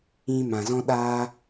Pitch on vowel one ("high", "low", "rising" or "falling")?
high